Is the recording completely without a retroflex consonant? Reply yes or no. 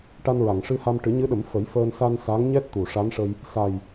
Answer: no